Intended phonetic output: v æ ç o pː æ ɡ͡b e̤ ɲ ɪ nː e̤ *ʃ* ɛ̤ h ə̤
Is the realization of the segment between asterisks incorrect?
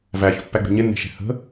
no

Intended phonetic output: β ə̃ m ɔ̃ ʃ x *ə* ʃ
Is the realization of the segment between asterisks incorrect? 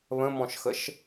no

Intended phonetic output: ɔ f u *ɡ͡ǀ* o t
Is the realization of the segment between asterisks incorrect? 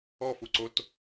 yes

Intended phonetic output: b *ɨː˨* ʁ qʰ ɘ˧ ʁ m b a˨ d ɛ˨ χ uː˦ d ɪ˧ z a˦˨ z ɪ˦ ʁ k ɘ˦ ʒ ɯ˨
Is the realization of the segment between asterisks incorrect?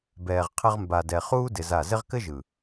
yes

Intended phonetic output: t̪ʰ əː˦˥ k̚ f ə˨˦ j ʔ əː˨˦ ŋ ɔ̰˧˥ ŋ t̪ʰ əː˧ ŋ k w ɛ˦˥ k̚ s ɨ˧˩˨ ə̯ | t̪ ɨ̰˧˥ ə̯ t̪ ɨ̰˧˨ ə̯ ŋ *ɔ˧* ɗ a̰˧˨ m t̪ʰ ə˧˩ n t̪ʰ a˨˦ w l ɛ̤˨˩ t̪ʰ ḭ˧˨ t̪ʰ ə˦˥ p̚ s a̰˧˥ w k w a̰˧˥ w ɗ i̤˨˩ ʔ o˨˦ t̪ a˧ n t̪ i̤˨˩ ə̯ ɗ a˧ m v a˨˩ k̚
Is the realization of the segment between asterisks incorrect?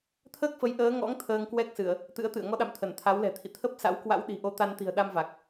no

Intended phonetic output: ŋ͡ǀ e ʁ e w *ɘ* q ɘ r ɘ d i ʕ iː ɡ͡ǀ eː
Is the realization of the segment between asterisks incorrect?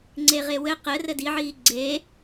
no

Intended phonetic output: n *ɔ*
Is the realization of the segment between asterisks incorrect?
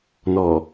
no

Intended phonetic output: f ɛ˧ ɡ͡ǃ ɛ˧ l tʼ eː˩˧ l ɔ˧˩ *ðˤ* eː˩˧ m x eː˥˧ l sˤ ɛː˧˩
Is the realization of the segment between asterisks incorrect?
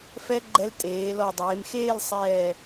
yes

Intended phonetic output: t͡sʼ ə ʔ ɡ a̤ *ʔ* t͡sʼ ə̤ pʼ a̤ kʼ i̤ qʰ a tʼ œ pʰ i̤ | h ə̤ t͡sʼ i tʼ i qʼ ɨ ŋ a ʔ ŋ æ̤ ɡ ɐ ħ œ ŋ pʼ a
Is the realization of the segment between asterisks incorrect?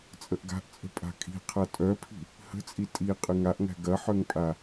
no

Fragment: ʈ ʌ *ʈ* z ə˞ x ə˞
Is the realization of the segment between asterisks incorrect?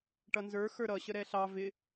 yes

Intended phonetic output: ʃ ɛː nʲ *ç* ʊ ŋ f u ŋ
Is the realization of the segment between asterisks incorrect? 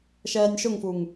yes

